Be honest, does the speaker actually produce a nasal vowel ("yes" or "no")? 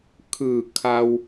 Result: no